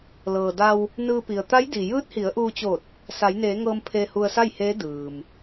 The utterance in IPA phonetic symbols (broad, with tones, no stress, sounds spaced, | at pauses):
l ɤː˩ d a˧ w | n ɯː˧ p i˩ ə̯ t̪ a˧˥ j d i˩ j ɯː˧˥ t̚ h i˩˧ ə̯ ʔ uː˧ t͡ɕ o˧˩ t̚ | s a˩˧ j n eː˩˧ ŋ ɤː˧ m pʰ eː˧ h u˧ ə̯ s a˥˨ j h eː˧˥ d ɯː˩ m